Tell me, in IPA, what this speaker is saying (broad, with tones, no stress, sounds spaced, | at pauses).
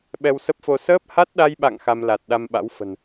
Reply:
ɓ ɛ˧ w s ə˦˥ p̚ f o˧ s əː˦˥ p̚ h a˦˥ t̚ ɗ a˧ j ɓ a̰˧˨ ŋ x a˧ m l a˨˩ t̚ ɗ a˧ m ɓ a̰˧˥ w f ə̤˨˩ n